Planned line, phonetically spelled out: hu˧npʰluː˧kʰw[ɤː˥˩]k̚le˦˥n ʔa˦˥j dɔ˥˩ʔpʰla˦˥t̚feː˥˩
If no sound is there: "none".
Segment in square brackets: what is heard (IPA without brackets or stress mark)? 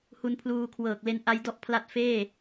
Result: ɤː˨˩